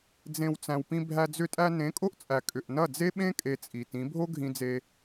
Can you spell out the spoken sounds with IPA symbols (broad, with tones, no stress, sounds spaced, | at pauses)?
d͡z ẽ˧ w t͡s æ̃˨ w p ĩ˧ bʱ æ˧ d͡z ʏ˧ tʼ æ˧ n ẽ˨˦ kʼ o˦ ʔ t͡sʼ æ˨ kʼ ʏ˨ ʔ n ɐ˦˨ d͡z e˦ ɓ ẽ˦ kʼ e˧ t͡sʼ i˨ t ĩ˨˦ bʱ o˦ ɡʱ ĩ˧ d͡z e˧